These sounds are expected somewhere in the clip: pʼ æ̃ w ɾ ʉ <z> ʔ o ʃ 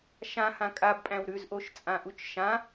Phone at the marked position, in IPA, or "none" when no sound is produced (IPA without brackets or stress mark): z